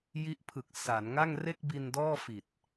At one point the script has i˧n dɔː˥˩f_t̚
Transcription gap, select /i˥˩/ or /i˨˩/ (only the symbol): i˨˩